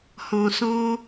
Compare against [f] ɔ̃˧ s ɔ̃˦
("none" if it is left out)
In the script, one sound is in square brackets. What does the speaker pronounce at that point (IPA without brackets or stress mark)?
h